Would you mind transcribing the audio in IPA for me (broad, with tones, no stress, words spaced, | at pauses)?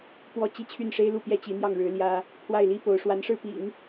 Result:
pwɔ˥˩ t͡ɕi˥t͡ɕʰy˥˩nʂe˥ɪ̯lu˥˩ pjɛ˥t͡ɕi˧˥n̪jɑ˥˩ŋ ɻɻ̩˧˥ljä˥ | pʰwa˥˩ɪ̯li˥po˧˥ʊ̯ ʂwa˧˥nʂɻ̩˥˩pḭ˨˩˦ŋ